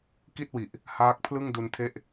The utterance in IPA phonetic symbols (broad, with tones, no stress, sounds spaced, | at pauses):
k i˥˩ t̚ w i˨˩ ʔ | h aː˦˥ k̚ pʰ l ɯ˥˩ ŋ d u˧ n tʰ e˥˩ ʔ